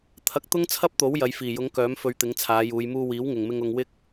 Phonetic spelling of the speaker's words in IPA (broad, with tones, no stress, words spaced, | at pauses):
t̪ʰɐ˨˥k̚t̪ʊ˥ŋt͡sʰɐ˥p̚t̪o˨˥w jɐ˨˧jfiː˨˩jʊ˨˥ŋkœː˨˥m fɵ˧ɥt̪ɪ˨˥ŋt͡sʰaː˨˧juː˨˧j muː˧wiː˨˥wŋɪ˨ŋmɪ˧ŋ ʊ˧ŋwɪ˥k̚